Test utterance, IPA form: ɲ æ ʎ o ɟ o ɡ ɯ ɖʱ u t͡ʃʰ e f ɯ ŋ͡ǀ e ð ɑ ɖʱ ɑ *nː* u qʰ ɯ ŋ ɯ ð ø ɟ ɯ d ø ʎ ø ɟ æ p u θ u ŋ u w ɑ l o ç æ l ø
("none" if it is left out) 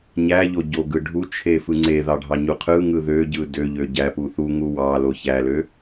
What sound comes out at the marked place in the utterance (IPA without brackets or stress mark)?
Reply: ɲ